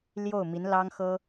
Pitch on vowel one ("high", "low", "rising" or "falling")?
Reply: falling